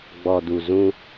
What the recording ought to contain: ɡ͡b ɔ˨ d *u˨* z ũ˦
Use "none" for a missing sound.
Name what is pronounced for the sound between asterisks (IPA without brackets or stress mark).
u˨